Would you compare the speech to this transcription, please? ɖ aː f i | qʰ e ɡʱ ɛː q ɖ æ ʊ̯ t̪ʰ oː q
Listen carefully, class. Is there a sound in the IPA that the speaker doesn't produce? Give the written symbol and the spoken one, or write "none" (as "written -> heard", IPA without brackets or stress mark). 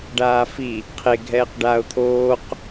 æ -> a